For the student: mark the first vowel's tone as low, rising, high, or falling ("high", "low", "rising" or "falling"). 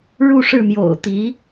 falling